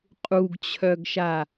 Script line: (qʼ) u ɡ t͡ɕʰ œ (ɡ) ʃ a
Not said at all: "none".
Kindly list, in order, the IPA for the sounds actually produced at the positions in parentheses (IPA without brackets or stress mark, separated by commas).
qʼ, ɡ